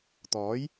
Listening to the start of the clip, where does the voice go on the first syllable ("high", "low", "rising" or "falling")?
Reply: rising